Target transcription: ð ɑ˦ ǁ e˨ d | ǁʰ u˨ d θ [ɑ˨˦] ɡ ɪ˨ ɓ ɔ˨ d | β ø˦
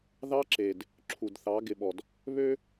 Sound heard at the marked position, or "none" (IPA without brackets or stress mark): ɑ˨˦